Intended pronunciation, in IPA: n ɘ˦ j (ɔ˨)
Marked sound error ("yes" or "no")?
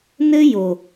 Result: yes